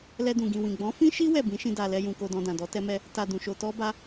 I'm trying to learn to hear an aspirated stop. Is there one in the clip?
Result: no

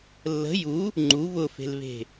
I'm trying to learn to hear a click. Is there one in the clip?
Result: yes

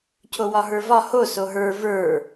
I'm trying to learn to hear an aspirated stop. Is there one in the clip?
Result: yes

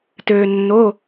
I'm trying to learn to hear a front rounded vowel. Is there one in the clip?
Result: yes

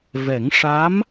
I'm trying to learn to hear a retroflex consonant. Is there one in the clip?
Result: yes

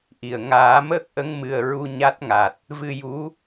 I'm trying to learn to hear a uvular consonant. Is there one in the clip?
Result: no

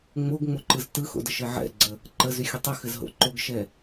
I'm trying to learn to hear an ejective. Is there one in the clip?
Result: no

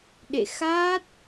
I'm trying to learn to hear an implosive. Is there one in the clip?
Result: yes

